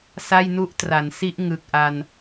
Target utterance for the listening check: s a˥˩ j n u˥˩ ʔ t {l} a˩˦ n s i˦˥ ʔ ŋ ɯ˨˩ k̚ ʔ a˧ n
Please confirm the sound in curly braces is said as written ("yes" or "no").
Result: no